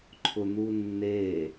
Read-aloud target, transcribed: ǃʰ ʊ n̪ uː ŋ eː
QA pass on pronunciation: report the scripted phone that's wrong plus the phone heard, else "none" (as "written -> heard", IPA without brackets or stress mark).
ŋ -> nː